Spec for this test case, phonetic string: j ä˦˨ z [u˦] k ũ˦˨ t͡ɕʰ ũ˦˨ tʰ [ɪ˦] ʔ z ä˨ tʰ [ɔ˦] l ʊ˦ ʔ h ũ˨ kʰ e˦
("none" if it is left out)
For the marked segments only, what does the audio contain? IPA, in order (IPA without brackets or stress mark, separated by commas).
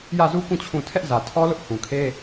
u˦, ɛ˦, ɔ˦